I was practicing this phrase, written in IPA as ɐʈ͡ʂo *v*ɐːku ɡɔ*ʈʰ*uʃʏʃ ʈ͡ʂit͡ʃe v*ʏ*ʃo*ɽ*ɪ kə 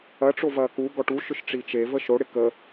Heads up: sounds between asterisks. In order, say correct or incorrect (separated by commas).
correct, incorrect, incorrect, correct